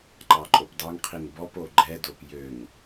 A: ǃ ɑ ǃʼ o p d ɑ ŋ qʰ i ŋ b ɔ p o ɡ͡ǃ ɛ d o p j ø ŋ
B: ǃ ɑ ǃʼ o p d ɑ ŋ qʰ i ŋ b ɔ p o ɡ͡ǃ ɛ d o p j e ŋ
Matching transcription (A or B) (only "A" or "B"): A